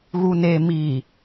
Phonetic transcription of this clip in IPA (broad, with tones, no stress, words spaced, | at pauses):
ɣu˨neː˨miː˨